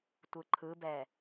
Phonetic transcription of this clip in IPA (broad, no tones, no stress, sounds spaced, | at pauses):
tʷ ɯ ǃʰ ɯ b ɛ